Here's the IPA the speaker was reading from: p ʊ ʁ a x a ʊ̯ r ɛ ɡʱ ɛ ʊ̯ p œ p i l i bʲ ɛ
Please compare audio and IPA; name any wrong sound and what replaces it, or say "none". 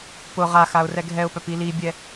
none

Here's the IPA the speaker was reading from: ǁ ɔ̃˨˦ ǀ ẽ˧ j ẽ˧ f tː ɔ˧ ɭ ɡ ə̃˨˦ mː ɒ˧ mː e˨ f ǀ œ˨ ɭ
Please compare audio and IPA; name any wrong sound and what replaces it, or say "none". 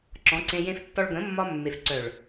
none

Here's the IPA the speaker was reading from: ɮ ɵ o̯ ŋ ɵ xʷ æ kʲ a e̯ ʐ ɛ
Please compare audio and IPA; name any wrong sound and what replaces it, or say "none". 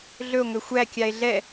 ʐ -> ɮ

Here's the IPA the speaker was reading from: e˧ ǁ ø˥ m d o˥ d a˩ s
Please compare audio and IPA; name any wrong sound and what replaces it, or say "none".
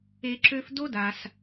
m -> f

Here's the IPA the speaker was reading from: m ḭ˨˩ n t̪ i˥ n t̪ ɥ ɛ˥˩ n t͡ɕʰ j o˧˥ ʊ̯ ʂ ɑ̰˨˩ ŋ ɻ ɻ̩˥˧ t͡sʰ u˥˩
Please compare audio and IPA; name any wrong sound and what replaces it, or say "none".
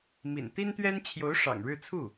ɛ˥˩ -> ɛ˥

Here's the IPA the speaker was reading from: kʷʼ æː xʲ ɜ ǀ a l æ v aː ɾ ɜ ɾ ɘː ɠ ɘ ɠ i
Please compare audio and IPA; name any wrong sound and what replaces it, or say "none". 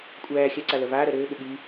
æ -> ɜ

